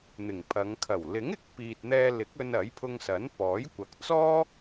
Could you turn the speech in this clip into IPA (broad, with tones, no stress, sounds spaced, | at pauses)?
n̪ ɪ˨˩ ŋ pʰ ɐ˨˧ ŋ kʰ ɐ˨˩ w l ɪ˨˥ ŋ ɪ˨ k̚ p iː˨ t̚ n̪ ɛː˧ l ɪ˨˥ k̚ ɵ˧ n ɐ˨˥ j pʰ ʊ˧ ŋ s ɐ˨˥ n p ɔː˨˥ j kʷ ɐ˨ k̚ t͡s ɔː˥